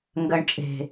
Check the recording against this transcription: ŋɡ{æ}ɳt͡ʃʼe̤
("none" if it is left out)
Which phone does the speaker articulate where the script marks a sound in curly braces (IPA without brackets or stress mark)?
ɜ